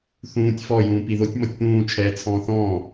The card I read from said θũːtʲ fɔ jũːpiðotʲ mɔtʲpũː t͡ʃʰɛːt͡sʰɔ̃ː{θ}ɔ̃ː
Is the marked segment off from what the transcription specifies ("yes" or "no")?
no